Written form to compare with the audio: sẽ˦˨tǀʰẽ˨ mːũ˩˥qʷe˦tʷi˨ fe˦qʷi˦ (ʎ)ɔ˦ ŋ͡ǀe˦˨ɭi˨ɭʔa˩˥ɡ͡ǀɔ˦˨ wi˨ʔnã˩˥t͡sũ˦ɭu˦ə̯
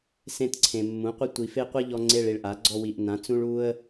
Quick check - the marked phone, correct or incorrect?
correct